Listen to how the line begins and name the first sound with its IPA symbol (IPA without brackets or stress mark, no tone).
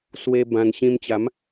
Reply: s